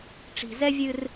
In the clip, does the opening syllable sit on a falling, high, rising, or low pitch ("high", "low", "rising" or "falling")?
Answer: low